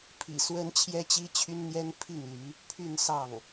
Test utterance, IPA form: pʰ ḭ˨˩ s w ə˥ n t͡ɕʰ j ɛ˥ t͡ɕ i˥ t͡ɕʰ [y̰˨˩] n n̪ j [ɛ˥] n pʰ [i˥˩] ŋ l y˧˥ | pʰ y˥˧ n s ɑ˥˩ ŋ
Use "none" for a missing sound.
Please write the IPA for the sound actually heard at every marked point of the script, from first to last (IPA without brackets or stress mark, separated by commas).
y˥, ɛ˥, i˥˩